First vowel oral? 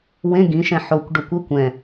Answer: no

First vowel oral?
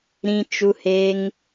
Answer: no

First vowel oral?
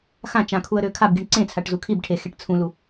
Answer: no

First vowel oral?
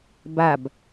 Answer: yes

